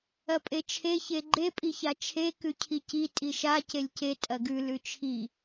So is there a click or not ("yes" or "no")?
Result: yes